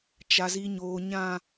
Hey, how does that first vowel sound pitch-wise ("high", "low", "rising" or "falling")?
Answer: low